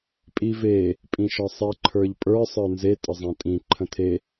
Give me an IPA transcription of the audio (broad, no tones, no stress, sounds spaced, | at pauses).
pʼ i v e | pʼ ĩ ʃ ɒ sˤ i ǃʰ ə˞ ʎ pʼ ə˞ sˤ ə˞ n z e tʼ ə zˤ æ̃ tʼ ĩ ǃʰ ə̃ tʰ e